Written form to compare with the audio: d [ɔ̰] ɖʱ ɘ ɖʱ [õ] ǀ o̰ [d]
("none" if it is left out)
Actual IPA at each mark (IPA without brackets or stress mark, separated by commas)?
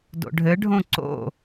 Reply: o̰, õ, none